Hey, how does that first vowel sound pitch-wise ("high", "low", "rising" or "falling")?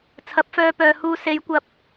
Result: rising